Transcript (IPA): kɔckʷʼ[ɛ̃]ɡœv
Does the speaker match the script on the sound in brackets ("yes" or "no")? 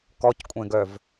yes